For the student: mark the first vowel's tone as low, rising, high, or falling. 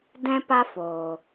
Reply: high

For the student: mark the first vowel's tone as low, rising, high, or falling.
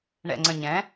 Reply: low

